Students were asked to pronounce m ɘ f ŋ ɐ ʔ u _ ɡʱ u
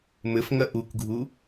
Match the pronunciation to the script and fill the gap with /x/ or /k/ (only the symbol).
k